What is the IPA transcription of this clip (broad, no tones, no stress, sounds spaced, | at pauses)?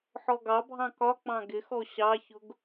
ħ ɔ ɡ ɑ bʱ ɑ̃ k ɒ k͡p ɑ̃ ɡ ɪ x ɔ ɕ ɑ ç ʊ ɡ